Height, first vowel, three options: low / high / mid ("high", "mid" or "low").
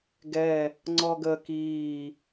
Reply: mid